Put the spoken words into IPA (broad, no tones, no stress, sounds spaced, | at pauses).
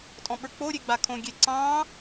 tʼ ɔ̃ ɓ ə˞ k͡p o ɾʲ e ɡ͡b a kʰ õ ɡʲ e ǀ ɑ̃